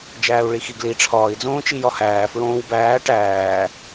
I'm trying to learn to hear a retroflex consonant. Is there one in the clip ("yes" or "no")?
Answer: yes